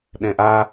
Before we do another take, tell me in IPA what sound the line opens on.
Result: ɗ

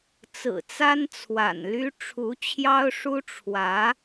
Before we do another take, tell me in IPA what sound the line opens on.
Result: t͡s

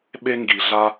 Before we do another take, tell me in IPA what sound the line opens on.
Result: ɓ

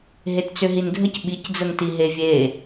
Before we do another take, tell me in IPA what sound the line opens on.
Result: ɦ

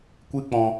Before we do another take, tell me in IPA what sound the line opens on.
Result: kʷ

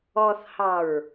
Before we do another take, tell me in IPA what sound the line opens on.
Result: ɔ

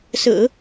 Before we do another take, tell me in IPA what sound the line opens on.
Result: s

